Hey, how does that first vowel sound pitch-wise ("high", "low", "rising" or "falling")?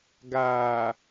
low